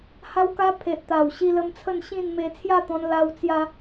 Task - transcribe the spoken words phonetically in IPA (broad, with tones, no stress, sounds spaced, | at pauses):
h a˦ w k a˦ pʰ e˨ ʔ t̪ a˨˩ w ɕ i˧ l ə˧ m t͡sʰ ə˥˧ n ɕ ĩ˥˧ n m e˧ t͡sʰ j a˥˧ t̪ ɔ̃˧ n l a˧ w t͡s j a˧